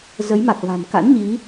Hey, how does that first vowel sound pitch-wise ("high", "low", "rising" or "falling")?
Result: rising